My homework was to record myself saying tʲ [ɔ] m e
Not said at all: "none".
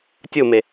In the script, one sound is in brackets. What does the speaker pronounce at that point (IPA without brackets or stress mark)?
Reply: o